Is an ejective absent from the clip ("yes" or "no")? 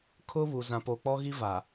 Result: yes